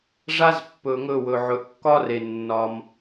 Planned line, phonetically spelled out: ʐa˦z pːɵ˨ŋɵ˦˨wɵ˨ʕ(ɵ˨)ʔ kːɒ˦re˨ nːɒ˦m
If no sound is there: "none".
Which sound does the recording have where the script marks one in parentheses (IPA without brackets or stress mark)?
ɵ˨